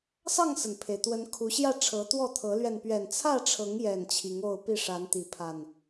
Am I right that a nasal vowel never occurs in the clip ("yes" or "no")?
yes